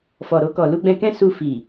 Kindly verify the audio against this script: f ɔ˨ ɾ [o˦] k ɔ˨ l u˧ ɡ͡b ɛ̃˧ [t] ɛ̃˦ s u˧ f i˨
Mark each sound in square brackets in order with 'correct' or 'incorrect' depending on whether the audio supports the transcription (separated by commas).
incorrect, incorrect